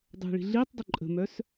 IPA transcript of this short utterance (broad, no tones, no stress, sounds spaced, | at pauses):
dˤ ɛ̤ ɭ i̤ ɮ i tˤ dˤ o ǃʼ ə̤ m œ s